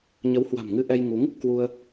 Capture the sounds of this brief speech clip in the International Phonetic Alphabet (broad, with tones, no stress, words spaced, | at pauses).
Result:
ɲə˨˦whwa̤˨˩mŋɨ˧ʔɛ˧j ŋu˨˦ŋ | kwu˧ə̯